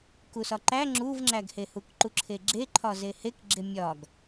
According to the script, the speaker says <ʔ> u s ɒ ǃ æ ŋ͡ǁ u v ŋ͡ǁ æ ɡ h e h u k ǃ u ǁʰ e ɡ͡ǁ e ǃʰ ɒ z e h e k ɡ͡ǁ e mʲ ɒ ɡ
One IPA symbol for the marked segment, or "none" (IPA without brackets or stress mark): k